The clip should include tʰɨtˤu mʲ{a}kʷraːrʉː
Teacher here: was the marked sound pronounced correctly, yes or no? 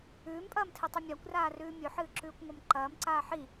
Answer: yes